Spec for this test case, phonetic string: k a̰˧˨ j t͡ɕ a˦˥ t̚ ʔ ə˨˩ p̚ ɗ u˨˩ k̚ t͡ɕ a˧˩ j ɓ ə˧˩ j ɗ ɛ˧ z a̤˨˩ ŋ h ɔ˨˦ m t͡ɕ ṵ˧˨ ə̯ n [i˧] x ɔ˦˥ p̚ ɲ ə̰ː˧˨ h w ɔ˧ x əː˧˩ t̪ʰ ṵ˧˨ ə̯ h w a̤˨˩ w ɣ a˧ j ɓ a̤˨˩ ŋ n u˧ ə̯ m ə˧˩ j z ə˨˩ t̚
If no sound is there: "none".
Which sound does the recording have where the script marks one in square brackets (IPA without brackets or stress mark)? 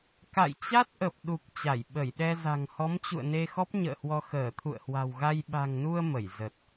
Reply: e˧